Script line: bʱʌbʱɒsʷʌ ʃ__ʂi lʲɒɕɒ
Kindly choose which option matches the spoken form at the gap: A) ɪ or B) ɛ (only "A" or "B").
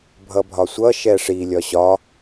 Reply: B